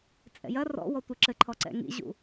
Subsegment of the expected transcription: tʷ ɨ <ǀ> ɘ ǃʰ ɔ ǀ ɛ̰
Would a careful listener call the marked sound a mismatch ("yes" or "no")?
yes